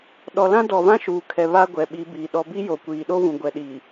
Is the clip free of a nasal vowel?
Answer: no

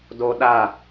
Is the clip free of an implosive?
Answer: no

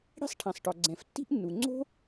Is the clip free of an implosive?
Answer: yes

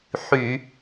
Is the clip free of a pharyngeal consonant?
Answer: no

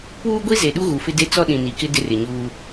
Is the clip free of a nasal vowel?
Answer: no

